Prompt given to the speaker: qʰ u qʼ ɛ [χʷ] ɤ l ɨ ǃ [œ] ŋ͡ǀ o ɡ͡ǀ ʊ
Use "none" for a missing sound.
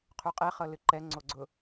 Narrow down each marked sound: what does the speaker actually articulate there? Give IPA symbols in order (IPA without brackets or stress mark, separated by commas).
χ, ɛ